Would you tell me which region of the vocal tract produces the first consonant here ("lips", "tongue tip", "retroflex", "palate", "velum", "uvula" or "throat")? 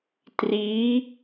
tongue tip